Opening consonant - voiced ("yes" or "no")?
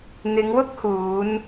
yes